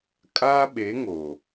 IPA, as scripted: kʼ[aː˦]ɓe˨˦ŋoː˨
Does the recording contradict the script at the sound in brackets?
no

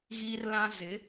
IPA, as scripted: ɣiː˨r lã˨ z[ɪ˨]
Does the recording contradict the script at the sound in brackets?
yes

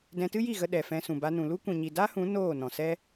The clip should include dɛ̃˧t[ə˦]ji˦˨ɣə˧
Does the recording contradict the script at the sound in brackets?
yes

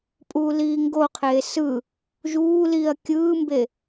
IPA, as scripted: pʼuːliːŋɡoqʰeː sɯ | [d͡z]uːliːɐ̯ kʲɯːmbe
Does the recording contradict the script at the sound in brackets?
yes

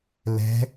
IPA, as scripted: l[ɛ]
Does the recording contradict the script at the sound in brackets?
yes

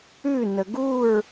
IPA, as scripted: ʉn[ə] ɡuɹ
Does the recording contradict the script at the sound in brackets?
no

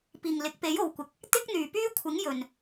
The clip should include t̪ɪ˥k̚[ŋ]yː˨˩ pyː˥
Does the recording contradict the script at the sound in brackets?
yes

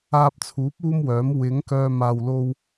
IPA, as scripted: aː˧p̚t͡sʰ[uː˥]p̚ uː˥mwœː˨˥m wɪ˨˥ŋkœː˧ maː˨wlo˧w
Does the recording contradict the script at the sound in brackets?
yes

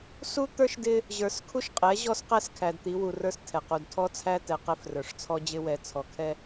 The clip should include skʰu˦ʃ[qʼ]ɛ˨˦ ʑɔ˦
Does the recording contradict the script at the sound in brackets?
no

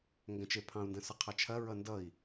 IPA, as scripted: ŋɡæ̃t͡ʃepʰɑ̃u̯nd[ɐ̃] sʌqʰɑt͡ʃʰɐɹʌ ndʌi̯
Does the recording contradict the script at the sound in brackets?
no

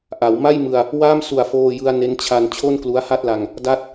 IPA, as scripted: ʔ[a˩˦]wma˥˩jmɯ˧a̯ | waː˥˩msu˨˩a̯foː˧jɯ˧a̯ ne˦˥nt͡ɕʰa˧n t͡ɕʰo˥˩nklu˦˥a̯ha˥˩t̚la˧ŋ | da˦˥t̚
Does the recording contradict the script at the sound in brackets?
no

